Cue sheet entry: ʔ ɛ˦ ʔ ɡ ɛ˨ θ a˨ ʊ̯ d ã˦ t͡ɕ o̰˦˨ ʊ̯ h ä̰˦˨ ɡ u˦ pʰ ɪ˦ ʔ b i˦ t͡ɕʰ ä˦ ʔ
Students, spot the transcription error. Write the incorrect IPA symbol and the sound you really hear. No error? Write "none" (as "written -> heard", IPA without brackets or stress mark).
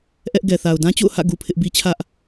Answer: none